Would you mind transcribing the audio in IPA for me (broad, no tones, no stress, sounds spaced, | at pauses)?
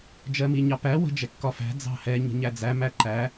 d͡ʒ ɜ m i ɲ ɑ p æ w ə̤ d͡ʒ ɛ kː ɒ f æ̤ d͡z ɑ̤ h ɛ ɲ ə̤ ɲ æ d͡z æ m æ ǃ æ